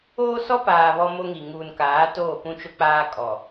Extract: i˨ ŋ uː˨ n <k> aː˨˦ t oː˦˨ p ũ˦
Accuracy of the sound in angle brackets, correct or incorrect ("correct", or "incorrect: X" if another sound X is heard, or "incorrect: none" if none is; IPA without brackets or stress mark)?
correct